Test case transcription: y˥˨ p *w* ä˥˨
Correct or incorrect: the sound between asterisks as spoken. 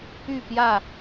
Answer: incorrect: j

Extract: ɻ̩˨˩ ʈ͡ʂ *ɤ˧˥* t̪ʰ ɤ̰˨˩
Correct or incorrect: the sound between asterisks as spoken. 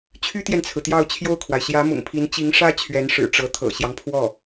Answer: correct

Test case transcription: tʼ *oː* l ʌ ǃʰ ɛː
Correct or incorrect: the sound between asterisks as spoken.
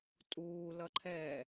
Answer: incorrect: uː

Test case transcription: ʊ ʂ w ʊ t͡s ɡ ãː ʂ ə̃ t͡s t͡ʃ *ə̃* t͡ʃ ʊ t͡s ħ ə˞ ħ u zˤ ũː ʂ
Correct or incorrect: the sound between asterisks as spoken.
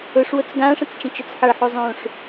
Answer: correct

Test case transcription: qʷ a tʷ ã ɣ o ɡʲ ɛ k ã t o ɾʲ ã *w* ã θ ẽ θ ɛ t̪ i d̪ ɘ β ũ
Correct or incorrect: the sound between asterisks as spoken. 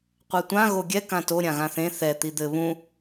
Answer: incorrect: ɣ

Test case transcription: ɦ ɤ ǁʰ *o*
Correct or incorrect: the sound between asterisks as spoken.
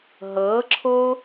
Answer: correct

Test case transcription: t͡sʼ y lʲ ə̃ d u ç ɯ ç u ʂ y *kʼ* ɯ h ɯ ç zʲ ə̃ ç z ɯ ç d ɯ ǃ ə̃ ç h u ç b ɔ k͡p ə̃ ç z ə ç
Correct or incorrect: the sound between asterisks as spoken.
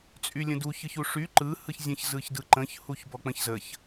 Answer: incorrect: ǃ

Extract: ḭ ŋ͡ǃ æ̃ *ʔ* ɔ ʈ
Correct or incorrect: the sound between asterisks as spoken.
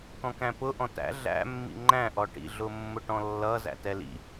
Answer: correct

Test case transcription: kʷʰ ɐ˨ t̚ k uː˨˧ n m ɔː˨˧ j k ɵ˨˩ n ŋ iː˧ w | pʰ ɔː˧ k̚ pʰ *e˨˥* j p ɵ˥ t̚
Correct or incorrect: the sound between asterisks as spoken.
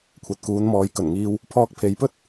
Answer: incorrect: e˨˧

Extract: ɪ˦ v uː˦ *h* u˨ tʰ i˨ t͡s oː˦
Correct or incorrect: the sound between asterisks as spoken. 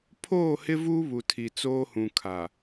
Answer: incorrect: β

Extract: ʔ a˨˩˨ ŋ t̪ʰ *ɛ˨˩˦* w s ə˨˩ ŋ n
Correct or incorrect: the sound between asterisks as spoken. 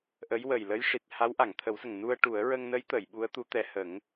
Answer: incorrect: ə˨˩˦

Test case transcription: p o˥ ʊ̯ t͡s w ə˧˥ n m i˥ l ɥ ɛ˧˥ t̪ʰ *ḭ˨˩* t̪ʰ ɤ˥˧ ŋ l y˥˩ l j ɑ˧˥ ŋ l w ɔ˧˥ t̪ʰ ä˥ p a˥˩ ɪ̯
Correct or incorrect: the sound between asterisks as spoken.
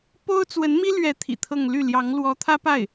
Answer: correct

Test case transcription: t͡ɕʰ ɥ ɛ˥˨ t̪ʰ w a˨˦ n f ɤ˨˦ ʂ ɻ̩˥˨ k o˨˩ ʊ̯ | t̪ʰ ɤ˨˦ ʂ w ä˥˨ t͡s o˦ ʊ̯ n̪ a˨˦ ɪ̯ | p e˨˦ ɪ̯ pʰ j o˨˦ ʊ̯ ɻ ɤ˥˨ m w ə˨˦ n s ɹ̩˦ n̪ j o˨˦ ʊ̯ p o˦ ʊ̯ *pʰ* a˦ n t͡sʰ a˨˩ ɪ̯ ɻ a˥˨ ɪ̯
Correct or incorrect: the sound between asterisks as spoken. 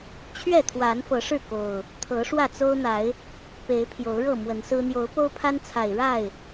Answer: correct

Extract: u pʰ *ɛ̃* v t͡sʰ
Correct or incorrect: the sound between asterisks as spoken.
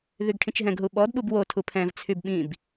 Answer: correct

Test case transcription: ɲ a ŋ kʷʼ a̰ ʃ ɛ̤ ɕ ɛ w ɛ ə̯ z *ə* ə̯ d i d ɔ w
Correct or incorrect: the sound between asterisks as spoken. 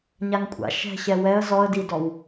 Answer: incorrect: ɔ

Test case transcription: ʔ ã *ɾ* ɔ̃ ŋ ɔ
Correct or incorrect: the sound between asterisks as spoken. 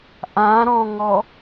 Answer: correct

